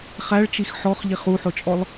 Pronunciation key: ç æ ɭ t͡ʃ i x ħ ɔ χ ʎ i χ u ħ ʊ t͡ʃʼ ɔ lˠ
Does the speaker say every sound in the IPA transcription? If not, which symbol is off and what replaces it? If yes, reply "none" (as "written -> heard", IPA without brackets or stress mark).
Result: ç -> χ